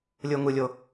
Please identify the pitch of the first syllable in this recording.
low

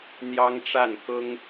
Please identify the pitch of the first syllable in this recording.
high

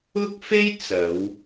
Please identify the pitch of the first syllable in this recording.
high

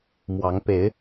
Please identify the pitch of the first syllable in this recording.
rising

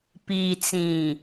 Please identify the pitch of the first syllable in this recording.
low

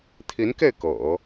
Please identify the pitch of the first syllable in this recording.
rising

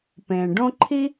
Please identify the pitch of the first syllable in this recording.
low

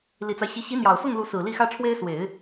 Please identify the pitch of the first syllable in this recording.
low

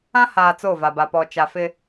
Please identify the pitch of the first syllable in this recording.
high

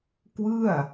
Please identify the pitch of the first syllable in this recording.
falling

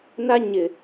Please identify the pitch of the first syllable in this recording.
high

